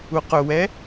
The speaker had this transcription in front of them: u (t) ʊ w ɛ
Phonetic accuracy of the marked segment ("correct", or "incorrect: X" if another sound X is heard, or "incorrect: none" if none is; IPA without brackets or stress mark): incorrect: q